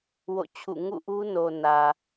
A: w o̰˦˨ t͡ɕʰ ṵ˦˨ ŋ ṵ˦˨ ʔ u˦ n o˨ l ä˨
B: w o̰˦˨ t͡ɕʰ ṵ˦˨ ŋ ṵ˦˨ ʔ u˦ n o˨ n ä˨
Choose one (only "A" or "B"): B